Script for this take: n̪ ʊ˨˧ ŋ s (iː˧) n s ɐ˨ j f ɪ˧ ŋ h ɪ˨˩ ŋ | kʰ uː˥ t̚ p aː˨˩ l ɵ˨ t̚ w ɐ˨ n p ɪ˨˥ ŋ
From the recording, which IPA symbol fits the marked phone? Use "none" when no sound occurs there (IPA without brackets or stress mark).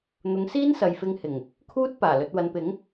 iː˥